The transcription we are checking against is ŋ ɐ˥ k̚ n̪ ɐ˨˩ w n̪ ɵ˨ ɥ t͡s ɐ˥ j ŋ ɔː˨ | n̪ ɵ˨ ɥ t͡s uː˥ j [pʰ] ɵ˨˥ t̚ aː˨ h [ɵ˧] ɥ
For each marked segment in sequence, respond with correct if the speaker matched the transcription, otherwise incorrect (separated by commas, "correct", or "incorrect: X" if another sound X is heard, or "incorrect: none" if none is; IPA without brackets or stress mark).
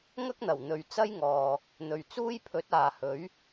correct, incorrect: ɵ˨˥